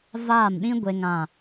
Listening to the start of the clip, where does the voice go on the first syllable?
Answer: falling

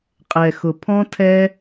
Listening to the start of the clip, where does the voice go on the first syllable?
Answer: low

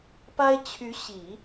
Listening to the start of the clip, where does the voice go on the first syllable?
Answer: high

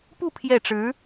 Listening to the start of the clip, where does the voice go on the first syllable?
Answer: falling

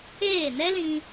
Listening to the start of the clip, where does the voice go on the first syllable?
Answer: falling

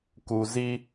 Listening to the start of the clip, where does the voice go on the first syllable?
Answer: low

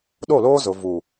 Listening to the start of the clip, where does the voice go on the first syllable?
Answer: falling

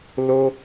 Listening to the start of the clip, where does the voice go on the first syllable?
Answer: high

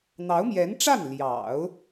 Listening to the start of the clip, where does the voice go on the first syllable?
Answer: rising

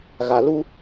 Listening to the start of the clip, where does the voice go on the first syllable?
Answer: low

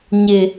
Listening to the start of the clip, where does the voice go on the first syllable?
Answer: low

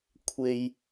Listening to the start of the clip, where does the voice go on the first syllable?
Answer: low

